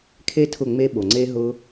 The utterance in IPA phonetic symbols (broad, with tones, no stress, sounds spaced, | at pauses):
kʰ e˦ tʰ ʊ˦˨ ŋ͡m e˦ ɓ o˨ ŋ͡ǀ e˦ ɦ ʊ˦